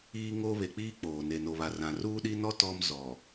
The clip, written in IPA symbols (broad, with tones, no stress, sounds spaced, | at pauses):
iː˦ ŋ o˦ β e˨ k͡p iː˦ k͡p oː˨ n e˨ n o˨ β a˨ r ã˨ r uː˦ ɗ i˦ n ɔ˦ t ɔ˦ m z ɔ˨